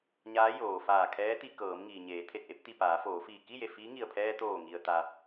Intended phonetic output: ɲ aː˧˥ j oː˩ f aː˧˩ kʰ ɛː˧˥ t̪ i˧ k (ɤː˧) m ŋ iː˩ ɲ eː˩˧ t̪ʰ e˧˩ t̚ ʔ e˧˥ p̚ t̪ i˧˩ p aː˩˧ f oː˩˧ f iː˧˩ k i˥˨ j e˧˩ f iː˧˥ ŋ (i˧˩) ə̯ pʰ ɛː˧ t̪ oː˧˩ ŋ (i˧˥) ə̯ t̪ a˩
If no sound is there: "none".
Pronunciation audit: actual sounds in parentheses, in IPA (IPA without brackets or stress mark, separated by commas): ɤː˩˧, i˧˩, i˩